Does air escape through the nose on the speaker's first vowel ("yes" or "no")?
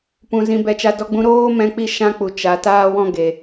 yes